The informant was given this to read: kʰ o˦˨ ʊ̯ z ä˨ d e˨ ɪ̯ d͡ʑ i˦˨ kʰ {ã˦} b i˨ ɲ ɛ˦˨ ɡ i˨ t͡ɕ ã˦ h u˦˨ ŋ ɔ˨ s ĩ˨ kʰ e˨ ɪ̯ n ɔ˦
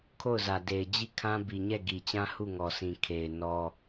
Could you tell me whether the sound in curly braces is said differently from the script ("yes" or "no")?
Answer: no